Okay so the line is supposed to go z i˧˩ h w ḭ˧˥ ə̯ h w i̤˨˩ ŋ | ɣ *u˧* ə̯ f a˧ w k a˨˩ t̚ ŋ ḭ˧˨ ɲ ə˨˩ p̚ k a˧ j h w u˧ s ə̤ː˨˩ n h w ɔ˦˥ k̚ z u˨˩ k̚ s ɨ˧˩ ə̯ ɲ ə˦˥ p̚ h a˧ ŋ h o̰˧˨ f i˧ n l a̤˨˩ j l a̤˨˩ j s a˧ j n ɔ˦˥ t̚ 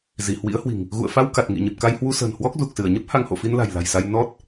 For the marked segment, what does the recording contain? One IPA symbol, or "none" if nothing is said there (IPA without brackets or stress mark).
ṵ˧˨